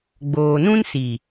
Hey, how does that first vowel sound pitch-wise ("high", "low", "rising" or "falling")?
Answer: low